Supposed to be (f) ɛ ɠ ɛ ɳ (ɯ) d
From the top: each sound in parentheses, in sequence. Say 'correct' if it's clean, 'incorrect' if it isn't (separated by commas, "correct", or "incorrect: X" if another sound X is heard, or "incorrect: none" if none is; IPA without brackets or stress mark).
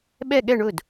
incorrect: ɓ, incorrect: ʊ